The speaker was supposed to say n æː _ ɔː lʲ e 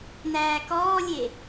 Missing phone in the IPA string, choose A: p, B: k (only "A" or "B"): B